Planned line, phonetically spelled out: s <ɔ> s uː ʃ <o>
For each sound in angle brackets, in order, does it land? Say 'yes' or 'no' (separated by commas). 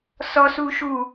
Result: yes, no